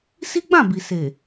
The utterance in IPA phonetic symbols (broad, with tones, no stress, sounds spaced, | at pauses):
s i˦ ɡ͡b ã˦˨ b i˨ s e˨